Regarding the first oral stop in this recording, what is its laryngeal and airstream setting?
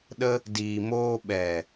implosive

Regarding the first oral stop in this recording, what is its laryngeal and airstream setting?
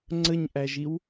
click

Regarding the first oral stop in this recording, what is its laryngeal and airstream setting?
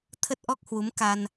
aspirated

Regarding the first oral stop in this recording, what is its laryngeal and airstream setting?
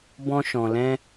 plain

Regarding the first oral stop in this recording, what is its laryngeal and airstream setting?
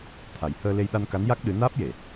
aspirated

